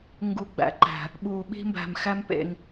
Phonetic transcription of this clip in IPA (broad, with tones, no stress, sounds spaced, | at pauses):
ŋ ɡ u˨ ɡ͡b æ̰˨ ǃ æ̤˨ | ɓ uː˨ ɓ i̤˧ m b æ̤˨ m x æ˦ m p ḛ˧ ŋ